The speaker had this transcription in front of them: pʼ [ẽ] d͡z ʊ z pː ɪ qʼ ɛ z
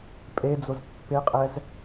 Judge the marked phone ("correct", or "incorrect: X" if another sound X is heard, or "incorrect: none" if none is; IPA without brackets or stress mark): incorrect: e